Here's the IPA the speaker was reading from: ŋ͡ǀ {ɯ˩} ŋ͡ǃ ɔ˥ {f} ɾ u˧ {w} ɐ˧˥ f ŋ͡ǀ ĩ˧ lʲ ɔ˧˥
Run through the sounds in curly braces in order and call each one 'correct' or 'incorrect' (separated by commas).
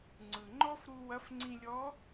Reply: correct, correct, correct